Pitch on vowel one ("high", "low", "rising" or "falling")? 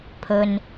low